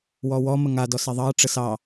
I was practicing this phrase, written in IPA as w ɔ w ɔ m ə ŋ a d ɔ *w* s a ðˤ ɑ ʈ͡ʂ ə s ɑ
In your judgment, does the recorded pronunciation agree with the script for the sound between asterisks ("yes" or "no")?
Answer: no